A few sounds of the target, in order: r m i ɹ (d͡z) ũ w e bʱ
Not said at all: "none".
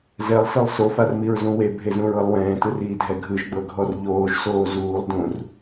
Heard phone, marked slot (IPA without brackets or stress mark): z